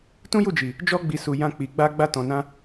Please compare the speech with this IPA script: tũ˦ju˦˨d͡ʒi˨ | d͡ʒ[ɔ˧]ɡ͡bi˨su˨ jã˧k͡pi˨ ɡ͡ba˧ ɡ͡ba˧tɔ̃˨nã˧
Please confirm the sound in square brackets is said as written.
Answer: yes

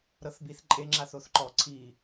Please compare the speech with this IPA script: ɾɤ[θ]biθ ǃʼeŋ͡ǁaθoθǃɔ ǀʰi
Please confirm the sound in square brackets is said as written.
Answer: yes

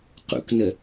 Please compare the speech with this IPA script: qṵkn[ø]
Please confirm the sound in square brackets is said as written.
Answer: no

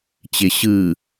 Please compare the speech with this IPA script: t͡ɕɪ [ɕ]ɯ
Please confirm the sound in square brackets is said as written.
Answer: yes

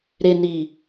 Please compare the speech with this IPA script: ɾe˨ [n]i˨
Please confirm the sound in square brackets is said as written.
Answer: yes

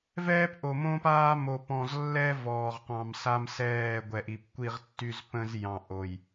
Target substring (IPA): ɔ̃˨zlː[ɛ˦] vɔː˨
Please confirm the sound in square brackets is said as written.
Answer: yes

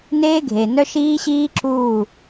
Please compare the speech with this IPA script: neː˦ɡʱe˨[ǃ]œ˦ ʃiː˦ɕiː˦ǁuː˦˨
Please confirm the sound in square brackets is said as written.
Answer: no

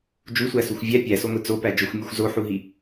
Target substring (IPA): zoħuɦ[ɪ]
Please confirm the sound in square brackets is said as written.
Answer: no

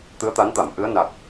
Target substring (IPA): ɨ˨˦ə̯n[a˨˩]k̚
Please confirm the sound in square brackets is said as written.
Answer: yes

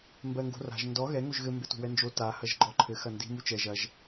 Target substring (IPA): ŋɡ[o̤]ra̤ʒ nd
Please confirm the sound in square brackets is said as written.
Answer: yes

